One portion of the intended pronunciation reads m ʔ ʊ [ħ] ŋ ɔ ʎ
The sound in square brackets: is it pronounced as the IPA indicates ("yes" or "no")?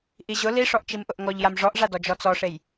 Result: no